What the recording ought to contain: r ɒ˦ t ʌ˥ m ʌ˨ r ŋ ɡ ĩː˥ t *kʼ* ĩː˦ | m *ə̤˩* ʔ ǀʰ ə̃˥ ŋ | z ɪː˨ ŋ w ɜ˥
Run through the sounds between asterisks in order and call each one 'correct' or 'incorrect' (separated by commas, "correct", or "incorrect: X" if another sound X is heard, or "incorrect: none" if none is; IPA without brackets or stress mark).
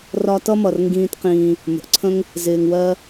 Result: incorrect: q, correct